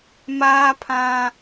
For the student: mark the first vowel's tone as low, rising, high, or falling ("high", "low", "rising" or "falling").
high